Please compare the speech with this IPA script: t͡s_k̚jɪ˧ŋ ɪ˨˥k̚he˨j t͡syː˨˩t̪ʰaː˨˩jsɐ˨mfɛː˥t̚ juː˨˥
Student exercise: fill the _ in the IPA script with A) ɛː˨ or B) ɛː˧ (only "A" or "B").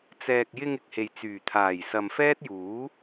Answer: A